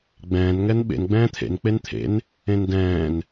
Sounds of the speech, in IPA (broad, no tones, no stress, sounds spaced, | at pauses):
ɡ͡b ɛ̃ː n ŋ ɛ n ɓ ḛ n ɡ͡b ɛ̃ː t̪ʰ ḛ n k͡p e n t̪ʰ ḛ n | ẽ n d ɛ̃ː n